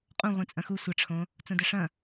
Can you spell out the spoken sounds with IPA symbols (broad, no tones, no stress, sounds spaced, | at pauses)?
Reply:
qʼ ũ ʁʷ ĩ t͡sʼ ɐ̃ x u sʷ ɐ ʈ͡ʂʰ õ | t͡s õ d ɐ ʂ ɐ̃